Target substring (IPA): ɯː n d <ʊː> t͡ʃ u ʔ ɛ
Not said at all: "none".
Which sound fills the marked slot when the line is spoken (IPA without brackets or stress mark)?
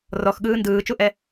ɯː